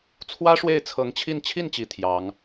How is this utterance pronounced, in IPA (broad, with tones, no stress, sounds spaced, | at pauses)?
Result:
t͡sʰ w ä˥ ʂ w e˥˩ ɪ̯ t͡sʰ ɤ˧˥ ŋ t͡ɕʰ i˥˧ n t͡ɕʰ i˥˩ n t͡ɕ i˨˩ t̪ʰ j ɑ˧˥ ŋ